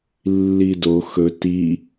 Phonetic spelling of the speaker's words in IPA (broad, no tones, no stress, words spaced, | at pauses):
lːido xɵ ti